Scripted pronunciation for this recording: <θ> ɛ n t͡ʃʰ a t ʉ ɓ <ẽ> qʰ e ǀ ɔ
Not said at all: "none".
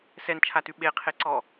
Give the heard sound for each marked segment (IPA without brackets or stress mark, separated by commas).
s, e